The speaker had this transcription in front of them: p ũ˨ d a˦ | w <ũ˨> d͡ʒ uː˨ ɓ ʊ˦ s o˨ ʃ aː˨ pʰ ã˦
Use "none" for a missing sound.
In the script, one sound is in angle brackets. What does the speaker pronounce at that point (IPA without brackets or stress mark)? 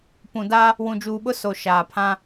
ũ˨